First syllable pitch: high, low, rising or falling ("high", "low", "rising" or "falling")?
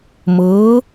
rising